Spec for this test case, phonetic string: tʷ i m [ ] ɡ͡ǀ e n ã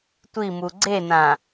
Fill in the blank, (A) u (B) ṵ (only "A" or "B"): A